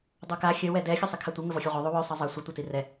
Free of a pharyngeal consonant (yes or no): yes